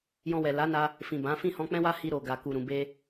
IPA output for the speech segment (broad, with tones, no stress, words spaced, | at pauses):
jɔ̃˧wɛ˨ la˨˦na˧ | fĩ˨bã˨˦ fĩ˦˨hɔ̃˧k͡pɛ̃˦wa˦ hi˧ɾo˨ ɡa˨ ku˨ɾũ˨be˧